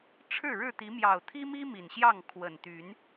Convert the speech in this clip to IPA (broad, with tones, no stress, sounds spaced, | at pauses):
ʈ͡ʂʰ ɻ̩˥˨ ɻ ɻ̩˥˨ t̪ i˨˦ m j ɑ˨˩ ʊ̯ t̪ʰ i˦ m i˦ m i˨˩ n ɕ j ɑ˥˨ ŋ kʰ w ə˨˩ n t̪ y˨˦ n